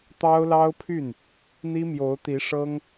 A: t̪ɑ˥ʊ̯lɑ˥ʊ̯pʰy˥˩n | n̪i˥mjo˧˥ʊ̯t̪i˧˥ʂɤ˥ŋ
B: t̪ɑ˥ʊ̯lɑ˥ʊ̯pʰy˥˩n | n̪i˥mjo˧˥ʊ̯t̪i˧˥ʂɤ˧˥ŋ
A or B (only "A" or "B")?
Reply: A